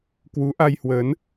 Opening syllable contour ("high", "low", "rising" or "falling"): rising